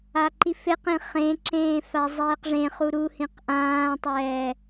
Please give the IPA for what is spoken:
a ǃ i f e q ĩ χ ẽ ǁ ẽː f a zˤ ɛː q ʐ ẽ χ u ɾ u h ĩ q ʔ ãː tˤ ɛː

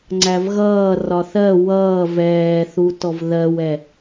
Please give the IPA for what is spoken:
ŋ͡ǀ æ v ɣ ʌː r ɒ θ ɜ w ʌː v ɛː θ u t ɔ v ð ɜ w ɛ

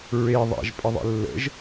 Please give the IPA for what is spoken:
ɹ e ðˤ a̰ ʒ pʼ ə ðˤ ə̰ lː ə̰ ʒ

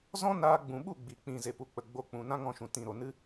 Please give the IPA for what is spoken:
z ɔ̃˦ n aː˧ ɡ͡b ũ˨ ɓ u˦˨ ɡ͡b i˨ k͡p ĩ˨ z e˨ p u˧ k͡p ə˨ ɡ͡b o˧ k͡p ũ˨ n ã˦ ŋ ɔ̃˧ ʃ ũ˨ t ĩ˨ ɾ o˨ n ɨ˦

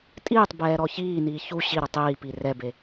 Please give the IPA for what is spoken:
tʼ iː tˤ b ɛː ɾ ɔ ç iː n iː ç u ɕ i ɾ ʊ tˤ iː p i r ɛ b e

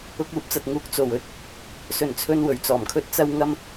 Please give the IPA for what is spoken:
ʊ˧ k̚ uː˨ p̚ t͡s ɐ˨ t̚ ŋ uː˨ k̚ t͡s o˨˩ w ɵ˨˥ t̚ | s ɵ˨˩ n t͡sʰ ɵ˧ n w ɵ˨˩ ɥ t͡s ɔː˨˩ m kʰ ɵ˥ t̚ t͡s ɐ˥ w ŋ ɐ˥ m

